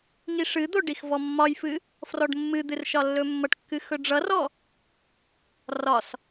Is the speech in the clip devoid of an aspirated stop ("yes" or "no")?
yes